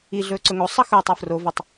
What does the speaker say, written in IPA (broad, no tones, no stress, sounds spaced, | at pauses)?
i ɮ ɵː ǀ ɵ ŋ o sˤ ʌ x ɵː tˤ ʊ f r o v ʌ tˤ